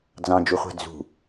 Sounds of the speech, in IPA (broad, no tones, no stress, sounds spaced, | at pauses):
d͡z ɑ̃ d͡ʒ u χʷ a̤ d͡z ṳ